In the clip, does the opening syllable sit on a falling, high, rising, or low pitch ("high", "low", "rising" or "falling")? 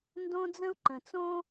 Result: high